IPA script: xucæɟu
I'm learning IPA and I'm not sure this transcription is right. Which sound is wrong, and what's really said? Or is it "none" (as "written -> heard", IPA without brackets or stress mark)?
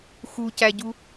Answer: none